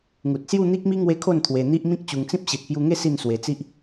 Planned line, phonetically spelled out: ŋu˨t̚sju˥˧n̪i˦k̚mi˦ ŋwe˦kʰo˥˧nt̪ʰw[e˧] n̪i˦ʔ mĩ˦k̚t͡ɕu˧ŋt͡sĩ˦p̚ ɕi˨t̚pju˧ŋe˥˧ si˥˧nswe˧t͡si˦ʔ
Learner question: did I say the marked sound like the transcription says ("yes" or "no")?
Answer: yes